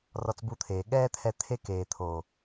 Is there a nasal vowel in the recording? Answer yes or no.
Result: no